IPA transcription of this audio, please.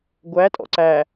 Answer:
ɡʷætʼɔ̰ ǀæ

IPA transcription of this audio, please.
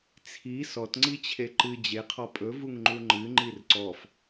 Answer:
t͡sʰi sɔtŋ͡ǀit͡ɕʰe ǃɨ d͡ʑeqʰɔ pʼɵvuŋŋ͡ǃu ŋ͡ǃɨŋ͡ǃir ǀɔf

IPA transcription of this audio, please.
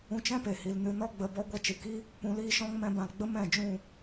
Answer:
ũ˧t͡ʃɛ̃˦pe˨hi˨l nɨ˧ nɔ˧ɡ͡bə˨bɔ˧ ɡʷɛ˧t͡ʃɨ˨ki˦ | pũ˧liː˦ʃɔ̃˦ŋ mɛ̃˧bã˨l ɡ͡bə˦ mɛ̃˦˨d͡ʒũ˦˨

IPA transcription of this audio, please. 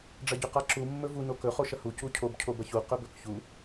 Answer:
ɖ͡ʐɐɟɵqaǁu mːɵvu nokɵ χoʃɐhu cucʰob cʰobɐçu qɵbɵkçu

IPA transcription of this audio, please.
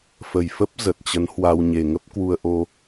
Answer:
fə˨˩jfə˦˥p̚ zə˨˩t̚t͡ɕə˨˦n hwa˧w ɲe˨˩ŋə˦˥p̚ kwu˧ə̯ʔo˧

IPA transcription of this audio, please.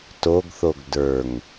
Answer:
toɡθoɡ də˞ŋ

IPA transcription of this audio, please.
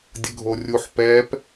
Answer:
dʲəɡʱorʲuħ pɛp

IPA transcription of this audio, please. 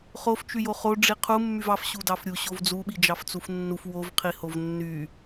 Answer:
χof t͡ʃyjoχo ɖ͡ʐiqʰu mːyvɑf ɕudɑfɾʲu ɕovd͡zu ɓid͡ʒɑft͡sufnːuf wov qʰihovnːy

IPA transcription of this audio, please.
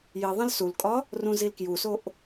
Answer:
ji ðˤẽlsulkʼɒ | rũzilkjusoʔ

